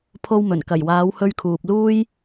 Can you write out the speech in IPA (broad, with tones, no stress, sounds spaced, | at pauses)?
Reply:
pʰ o˧ w m ɵ˨˩ n k ɐ˨˩ j w aː˨˧ w h ɵ˧ ɥ kʰ uː˨ p̚ l uː˥ j